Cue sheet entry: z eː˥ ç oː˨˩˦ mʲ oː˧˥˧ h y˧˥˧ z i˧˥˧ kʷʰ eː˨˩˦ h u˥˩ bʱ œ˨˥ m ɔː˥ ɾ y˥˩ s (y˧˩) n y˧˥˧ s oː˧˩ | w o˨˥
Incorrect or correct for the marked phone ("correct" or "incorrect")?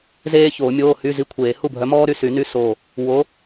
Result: incorrect